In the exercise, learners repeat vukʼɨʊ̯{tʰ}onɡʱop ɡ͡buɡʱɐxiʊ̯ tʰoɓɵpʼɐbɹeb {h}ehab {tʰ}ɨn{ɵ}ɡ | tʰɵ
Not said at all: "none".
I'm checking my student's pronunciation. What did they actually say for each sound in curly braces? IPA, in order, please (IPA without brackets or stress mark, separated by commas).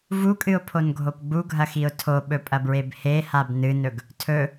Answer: pʰ, h, n, ɵ